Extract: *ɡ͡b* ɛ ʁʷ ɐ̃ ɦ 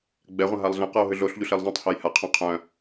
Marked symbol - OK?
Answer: yes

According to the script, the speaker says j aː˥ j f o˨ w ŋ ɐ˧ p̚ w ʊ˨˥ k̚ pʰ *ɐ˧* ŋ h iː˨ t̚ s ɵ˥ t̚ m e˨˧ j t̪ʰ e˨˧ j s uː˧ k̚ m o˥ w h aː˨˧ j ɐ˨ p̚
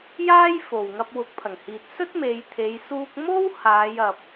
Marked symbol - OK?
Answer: no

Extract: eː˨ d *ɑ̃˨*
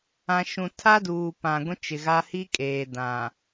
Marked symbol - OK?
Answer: no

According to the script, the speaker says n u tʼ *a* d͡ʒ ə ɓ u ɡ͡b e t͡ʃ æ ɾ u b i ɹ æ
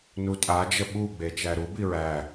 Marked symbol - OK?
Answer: yes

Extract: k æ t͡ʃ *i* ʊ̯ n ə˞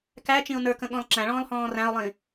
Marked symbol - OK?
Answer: no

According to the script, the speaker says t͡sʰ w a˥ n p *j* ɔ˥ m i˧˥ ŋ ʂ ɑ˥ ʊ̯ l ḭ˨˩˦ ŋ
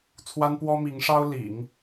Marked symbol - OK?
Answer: no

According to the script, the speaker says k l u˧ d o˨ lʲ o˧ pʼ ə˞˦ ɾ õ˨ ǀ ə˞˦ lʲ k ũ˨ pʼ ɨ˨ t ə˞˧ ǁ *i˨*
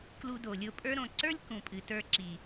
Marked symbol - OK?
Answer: yes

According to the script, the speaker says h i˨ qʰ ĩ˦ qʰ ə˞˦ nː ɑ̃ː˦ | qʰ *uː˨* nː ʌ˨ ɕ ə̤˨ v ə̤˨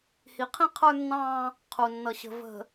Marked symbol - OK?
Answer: no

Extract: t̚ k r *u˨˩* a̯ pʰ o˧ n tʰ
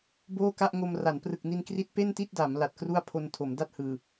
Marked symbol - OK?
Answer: no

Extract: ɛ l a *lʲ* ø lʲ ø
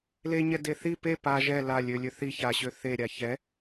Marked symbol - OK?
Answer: yes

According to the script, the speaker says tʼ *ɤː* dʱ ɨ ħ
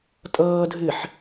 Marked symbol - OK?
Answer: yes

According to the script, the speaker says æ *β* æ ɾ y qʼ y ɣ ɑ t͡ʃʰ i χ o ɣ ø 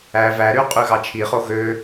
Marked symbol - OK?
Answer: no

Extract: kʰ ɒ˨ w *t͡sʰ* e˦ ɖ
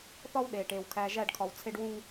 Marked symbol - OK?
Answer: yes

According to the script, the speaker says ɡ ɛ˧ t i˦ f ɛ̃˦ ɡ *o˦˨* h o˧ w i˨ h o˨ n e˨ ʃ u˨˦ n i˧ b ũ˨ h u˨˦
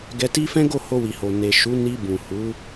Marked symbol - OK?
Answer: yes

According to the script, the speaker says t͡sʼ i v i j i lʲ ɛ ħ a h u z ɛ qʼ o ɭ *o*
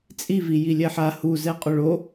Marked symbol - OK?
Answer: yes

